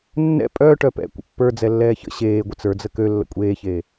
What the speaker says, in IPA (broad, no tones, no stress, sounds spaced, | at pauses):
nː ɛ̰ pʼ œː ʈ œ p ɛ̰ kʷ ə̰ pː ə˞ d͡z ɛ lː ɛː ç ə̰ ɕ eː ɡʷ ɯ t͡s ə˞ d͡z ə k ø lː ə̰ kʷʼ eː ç eː